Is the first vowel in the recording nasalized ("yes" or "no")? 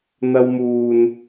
no